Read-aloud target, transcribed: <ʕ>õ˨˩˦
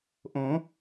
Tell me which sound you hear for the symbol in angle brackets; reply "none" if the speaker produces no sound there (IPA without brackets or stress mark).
ʔ